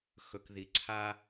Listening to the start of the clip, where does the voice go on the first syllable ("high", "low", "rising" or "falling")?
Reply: low